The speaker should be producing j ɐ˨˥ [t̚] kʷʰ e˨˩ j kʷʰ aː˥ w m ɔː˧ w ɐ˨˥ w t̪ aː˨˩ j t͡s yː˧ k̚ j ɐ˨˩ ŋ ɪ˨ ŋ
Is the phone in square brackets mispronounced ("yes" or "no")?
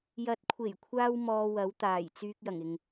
no